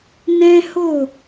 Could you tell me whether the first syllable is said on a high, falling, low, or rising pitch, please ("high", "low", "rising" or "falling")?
high